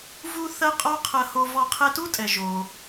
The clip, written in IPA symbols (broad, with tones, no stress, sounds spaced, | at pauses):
v u˧ θ ɐ˥ qʼ ɔ˥ qʰ ɐ˧ h o˧ v ɔ˧ qʰ ɛ˧ t u˥ tʼ ɛ˩ ʒ o˩